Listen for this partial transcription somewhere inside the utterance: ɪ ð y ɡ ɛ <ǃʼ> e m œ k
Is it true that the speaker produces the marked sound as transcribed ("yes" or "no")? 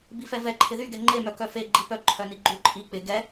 no